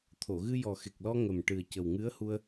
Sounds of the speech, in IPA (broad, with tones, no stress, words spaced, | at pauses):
t̪ʰo˨˩˨ɣɨ˧jɔ˨˩ xe˨˩k̚lɔ˧ ŋə˨˩mʈɨ˨˩ə̯ cə˨˩wŋɨ˧˥ə̯hu˧ə̯